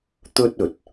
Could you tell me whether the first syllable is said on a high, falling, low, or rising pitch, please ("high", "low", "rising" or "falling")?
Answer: high